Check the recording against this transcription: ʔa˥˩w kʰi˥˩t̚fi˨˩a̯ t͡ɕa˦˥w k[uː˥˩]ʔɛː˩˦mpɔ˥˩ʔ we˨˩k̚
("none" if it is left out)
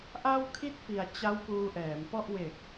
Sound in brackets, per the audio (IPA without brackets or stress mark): uː˧